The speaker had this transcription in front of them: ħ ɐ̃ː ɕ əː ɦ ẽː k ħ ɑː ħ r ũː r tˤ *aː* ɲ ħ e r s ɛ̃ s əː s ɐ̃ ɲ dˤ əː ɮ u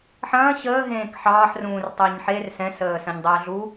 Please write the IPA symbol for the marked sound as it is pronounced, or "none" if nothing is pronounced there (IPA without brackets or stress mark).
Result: əː